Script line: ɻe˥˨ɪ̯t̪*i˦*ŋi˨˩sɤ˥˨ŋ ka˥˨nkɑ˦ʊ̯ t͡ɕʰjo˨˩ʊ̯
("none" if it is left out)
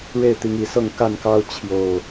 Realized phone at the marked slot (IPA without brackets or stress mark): i˨˦